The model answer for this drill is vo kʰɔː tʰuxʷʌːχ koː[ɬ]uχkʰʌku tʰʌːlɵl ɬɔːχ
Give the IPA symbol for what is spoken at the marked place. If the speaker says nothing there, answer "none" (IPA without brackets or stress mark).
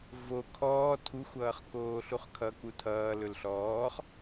ɬ